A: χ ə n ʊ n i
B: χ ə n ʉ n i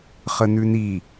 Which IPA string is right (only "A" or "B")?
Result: B